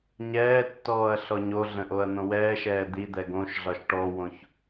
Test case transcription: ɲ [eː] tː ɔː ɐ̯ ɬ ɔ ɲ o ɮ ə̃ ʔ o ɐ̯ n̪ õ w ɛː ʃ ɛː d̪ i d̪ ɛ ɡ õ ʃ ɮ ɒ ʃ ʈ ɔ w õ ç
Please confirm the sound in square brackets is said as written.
no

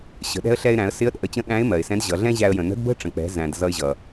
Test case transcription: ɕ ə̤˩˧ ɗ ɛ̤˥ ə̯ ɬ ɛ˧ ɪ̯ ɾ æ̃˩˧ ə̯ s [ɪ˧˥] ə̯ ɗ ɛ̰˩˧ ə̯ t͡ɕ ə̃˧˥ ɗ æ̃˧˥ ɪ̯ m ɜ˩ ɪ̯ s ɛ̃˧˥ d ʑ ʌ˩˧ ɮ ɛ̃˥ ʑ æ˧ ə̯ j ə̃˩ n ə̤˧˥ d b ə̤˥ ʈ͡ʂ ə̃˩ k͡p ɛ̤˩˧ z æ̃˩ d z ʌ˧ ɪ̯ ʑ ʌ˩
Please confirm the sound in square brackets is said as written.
yes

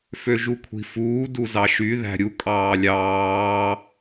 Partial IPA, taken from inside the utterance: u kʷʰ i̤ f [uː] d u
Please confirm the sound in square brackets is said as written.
yes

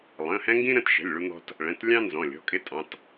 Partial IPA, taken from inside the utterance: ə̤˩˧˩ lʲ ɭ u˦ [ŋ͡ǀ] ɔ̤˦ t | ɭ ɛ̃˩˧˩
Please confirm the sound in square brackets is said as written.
no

